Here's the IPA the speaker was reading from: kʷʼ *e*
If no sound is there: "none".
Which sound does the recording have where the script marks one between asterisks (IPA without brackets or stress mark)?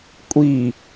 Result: i